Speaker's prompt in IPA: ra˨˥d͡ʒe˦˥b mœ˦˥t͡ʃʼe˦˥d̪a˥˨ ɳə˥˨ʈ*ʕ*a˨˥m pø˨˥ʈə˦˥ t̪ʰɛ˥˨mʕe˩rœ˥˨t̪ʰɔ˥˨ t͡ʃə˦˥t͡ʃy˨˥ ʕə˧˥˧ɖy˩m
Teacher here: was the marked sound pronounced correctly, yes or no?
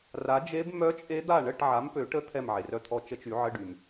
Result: yes